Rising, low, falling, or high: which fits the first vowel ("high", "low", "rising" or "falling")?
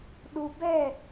low